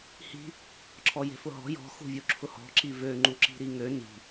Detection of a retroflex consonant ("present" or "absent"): absent